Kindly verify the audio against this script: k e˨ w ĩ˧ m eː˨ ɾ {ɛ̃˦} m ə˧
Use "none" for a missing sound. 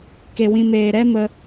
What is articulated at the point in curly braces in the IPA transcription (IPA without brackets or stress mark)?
ɛ˦